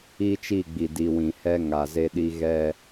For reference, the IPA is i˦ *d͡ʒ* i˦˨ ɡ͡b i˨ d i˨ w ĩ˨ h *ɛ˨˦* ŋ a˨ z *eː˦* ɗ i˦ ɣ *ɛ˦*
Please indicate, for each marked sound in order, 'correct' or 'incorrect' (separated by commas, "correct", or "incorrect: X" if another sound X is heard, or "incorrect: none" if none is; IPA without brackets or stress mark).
incorrect: t͡ʃ, incorrect: ɛ˦, incorrect: e˦, correct